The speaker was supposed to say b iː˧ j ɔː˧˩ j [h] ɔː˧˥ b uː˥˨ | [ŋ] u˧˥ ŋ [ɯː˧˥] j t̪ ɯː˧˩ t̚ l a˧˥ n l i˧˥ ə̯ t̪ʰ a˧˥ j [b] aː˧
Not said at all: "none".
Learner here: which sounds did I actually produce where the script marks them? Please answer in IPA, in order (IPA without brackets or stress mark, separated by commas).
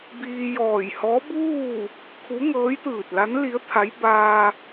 h, kʰ, ɤː˧˥, b